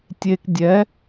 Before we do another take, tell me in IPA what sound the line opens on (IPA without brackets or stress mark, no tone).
tʲ